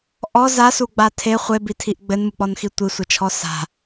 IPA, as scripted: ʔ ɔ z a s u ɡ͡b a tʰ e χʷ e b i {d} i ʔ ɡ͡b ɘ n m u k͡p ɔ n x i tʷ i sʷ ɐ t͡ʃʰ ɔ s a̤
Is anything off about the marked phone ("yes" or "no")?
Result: yes